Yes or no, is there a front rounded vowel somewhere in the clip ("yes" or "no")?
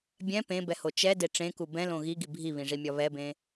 no